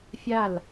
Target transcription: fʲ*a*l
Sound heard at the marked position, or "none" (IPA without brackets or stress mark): a